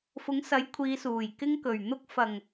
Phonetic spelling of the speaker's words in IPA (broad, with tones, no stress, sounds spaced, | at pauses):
f ʊ˨˥ ŋ s ɐ˨˥ j kʷʰ iː˨˧ s uː˨˩ j k ɪ˧ ŋ k ɵ˨˩ ɥ n̪ ʊ˧ k̚ f ɐ˨˩ ŋ